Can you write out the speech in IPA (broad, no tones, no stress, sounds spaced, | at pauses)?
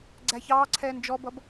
ɡ͡ǀ æ ç ɑː ǀʰ ɛː n d͡ʒ ɔ b ʌ b